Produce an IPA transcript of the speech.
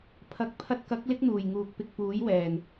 pʰ ɐ˨˥ k̚ pʰ ɐ˧ t̚ k ɐ˨˥ k̚ l ɪ˥ k̚ n̪ uː˨˩ j ŋ uː˨ k̚ p ɪ˧ k̚ p uː˨˥ j w ɛː˨˩ n

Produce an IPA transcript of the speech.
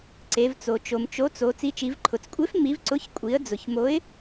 ǀ e˩˧ v t͡s o˩ t͡ʃ o˩ m t͡ʃ o˨˥ t͡s o˩˧ t͡s i˨˥ t͡ʃ i˩˧ v ǃʰ ʊ˩˧ t͡s kʷʼ e˨˥ f m i˨˥ v ǀ ʊ˨˥ ç kʷʼ i˩˧ ə̯ d͡z ʊ˩ ç m o˨˥ ɪ̯

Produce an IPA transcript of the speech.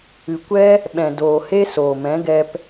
ɨ˨ kʷ ɛ˦ | ɓ ɛ̃˨ d oː˨ h e˦ s oː˨ m ɛ̃˨˦ ɡ ɛ˧ p

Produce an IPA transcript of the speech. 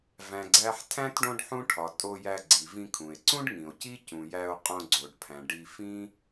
v æ̃˩ ɡ͡ǀ æ˨ ħ tʰ æ̃˥ t ɖ õ˦ ɖ ħ ũ˦ ʈʰ ɒ˩ tʼ o˨ j æ˨ ɡ͡ǀ i˩ v ĩ˨ kʰ ũ˩ e̯ ǀ ũ˥ ɖ ŋ ĩ˩ o̯ c i˦ c ũ˩ j æ˨ o̯ qʼ õ˨ ɡ͡ǀ o˩ ɖ pʰ æ̃˩ ɖ i˨ f ĩ˦

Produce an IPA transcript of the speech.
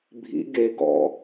bʱ ḭ ɡ e ɡ ɔ̰

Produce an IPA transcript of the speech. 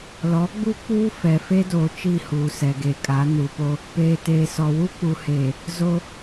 l ɔ˨˦ ɡ͡b u˦ k͡p uː˦ f ɛ˨ f e˦ d oː˨ t͡ʃ i˦˨ h uː˨ s ɛ˨ ɡ e˨ kʼ a˨˦ n u˨ p o˦ | p eː˨ t eː˨ s ɔ˨ w u˦ k͡p u˨ h eː˨ | z o˦

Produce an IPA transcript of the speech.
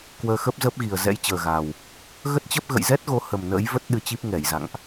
k w əː˧ x ə˦˥ p̚ z əː˦˥ p̚ ɣ i˨˩ ə̯ z ɛ̰˧˥ j t͡ɕ əː˨˩ ɣ a˨˩ w | ɣ ə˦˥ t̚ t͡ɕ ə˦˥ p̚ ɣ ə̰˧˨ j z ɛ˦˥ t̚ ɣ o˨˦ h ə˨˩ m n ə̰ː˧˥ j v ə˦˥ t̚ ɗ ɨ˧ t͡ɕ i˦˥ p̚ ŋ ɛ˧˩ j z a̰˧˨ ŋ ʔ

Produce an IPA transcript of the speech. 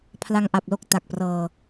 pʰ l a˧ ŋ ʔ a˨˩ p̚ l o˥˩ k̚ t a˨˩ k̚ p r ɤː˧

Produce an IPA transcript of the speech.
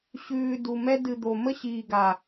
ɕ ʉː˨ d u˨ m ɛ˦ d ɨ˨ d̪ o˨ m ə˦ ɕ iː˨ ɡ a˨

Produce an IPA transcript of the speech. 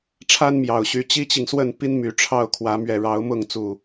ʈ͡ʂʰ a˦ n m j ɑ˨˩ ʊ̯ ɕ y˨˦ t͡ɕ i˦ t͡ɕ i˨ ŋ s w ə˥˨ n p i˦ n m y˨˦ ʈ͡ʂʰ ɑ˥˨ ʊ̯ kʰ w ä˨˦ m ɥ ɛ˨˩ ɻ ɑ˨˦ ʊ̯ m ʊ˥˨ ŋ t͡s u˨˩

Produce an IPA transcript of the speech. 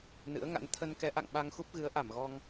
n ɨ̰˧˥ ə̯ ŋ a̰˧˥ n t̪ʰ ə˧ n k ɛ˨˦ ʔ a̰˧˨ ŋ ɓ a˧ ŋ x u˦˥ p̚ ɣ ɨ˨˦ ə̯ ʔ a˧˩ m ɣ ɔ˧ ŋ

